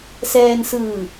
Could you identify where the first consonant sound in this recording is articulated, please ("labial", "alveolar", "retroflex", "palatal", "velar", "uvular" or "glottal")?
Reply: alveolar